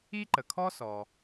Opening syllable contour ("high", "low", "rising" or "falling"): high